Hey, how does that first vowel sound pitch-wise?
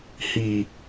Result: low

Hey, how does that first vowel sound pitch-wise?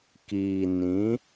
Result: low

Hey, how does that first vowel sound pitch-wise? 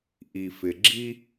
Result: low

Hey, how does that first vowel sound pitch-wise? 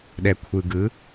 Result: low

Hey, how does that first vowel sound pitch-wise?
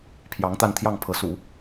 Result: rising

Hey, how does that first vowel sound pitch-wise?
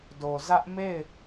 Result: low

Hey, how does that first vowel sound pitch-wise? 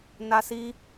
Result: high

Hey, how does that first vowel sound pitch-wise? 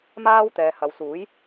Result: high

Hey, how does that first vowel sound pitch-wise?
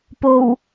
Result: low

